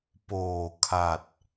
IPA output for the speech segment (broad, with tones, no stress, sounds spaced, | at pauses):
p oː˨˩ kʰ a˨˩ t̚